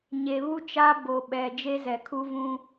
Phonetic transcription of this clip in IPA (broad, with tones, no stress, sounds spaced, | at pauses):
ɲ e˨ β u˦ t͡ʃ a˦ b o˨ ɓ ɛ˨ d͡ʒ e˦ z ɛ˨ kʰ u˦ v ũ˦